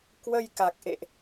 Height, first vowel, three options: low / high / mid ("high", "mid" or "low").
mid